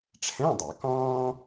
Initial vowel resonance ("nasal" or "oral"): nasal